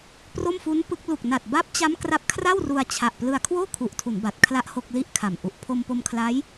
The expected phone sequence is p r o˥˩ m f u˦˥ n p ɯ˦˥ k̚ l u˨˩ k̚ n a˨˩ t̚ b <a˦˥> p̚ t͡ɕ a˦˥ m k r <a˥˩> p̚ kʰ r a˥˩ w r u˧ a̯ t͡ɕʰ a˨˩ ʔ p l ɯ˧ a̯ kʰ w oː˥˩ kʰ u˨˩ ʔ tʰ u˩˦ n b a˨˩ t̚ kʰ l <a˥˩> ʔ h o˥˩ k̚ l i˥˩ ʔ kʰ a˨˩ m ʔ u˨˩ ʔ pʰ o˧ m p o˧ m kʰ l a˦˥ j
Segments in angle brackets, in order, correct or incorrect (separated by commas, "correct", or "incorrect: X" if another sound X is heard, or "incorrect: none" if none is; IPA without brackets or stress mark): correct, incorrect: a˦˥, correct